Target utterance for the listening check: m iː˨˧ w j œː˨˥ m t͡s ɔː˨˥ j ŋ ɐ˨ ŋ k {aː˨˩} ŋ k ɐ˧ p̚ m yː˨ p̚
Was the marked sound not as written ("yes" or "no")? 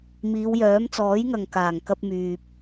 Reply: no